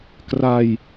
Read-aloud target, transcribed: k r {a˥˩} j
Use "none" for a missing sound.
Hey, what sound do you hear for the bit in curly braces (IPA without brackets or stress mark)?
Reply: a˧